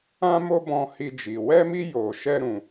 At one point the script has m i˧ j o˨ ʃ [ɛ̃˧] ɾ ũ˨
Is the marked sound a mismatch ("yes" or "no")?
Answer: yes